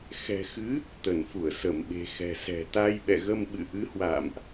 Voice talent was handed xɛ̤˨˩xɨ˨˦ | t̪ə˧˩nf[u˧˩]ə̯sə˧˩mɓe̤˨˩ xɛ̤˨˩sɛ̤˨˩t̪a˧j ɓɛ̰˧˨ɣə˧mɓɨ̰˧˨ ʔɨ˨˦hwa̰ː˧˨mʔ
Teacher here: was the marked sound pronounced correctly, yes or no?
yes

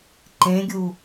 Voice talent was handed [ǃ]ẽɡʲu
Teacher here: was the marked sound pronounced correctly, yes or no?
yes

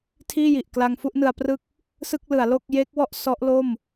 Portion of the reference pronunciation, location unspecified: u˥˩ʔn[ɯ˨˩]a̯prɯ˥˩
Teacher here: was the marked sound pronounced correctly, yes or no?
no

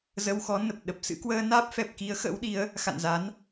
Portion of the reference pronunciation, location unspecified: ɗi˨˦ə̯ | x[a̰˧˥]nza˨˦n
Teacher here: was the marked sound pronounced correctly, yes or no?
no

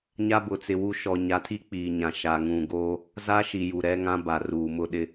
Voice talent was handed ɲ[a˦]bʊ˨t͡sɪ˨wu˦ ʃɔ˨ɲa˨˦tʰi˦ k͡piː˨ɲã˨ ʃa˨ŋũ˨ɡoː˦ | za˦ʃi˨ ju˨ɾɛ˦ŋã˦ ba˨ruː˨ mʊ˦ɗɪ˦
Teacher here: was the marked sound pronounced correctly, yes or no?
yes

